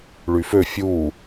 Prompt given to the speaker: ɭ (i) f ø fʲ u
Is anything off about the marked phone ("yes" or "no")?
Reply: yes